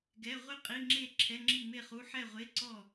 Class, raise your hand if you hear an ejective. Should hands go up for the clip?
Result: yes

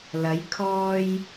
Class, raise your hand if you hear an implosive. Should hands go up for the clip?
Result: no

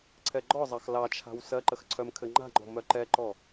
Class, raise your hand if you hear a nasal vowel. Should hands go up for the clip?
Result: no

